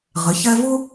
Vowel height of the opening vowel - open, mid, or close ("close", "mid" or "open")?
close